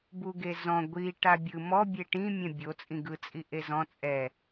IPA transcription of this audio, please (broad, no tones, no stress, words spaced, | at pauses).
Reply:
buɡezɔ̃ ɡʷi ʈabʲɯ mɔ bʲeʈĩ mʲɛ̃bʲo t͡sʼĩɡɯ t͡sʼiʔezɔ̃ t͡sʼɛ